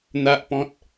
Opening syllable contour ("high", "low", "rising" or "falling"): low